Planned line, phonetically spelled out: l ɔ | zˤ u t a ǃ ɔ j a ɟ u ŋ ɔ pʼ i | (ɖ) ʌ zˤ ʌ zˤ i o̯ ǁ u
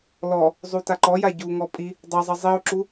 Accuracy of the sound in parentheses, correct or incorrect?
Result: incorrect